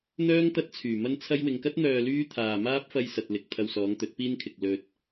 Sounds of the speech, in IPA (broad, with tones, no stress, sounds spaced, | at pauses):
n̪ œː˥ ŋ t̪ ɐ˥ t̚ t͡sʰ yː˨˩ m ɐ˥ n t͡sʰ ɐ˥ j w ɪ˨ ŋ k ɐ˥ t̚ n̪ œː˧ l yː˥ t̪ʰ aː˨ m aː˥ p̚ f ɐ˧ j s ɐ˨ t̚ l ɪ˨ k̚ t̪ʰ ɐ˧ w s ɔː˨˧ ŋ t̪ ɵ˨˥ t̚ p iː˥ n kʰ ɪ˨ k̚ l ɵ˧ t̚